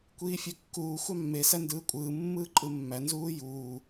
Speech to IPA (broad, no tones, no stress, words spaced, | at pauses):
kʷiːfʲøkːuː xʷɑmːe sændɯːkʷʼɯː mːɯːǃʼɯmːæ nzuːjuː